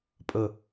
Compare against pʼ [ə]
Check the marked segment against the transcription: correct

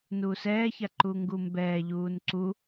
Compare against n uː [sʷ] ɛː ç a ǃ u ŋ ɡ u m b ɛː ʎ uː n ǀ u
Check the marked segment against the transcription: incorrect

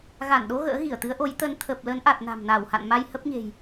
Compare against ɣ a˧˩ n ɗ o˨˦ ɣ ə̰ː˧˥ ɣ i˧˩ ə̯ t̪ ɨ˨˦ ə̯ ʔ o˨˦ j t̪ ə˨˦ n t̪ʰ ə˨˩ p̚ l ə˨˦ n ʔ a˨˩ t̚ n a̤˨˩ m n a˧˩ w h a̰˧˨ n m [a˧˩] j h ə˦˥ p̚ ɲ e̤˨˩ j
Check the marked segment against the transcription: incorrect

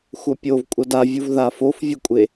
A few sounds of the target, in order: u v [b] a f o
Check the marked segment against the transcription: incorrect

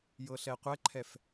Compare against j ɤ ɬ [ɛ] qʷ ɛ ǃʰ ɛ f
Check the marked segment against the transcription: correct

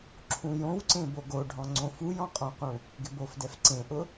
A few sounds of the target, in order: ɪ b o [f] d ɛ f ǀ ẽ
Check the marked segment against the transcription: correct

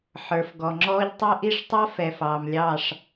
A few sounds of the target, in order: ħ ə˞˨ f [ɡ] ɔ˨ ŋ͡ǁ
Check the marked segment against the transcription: correct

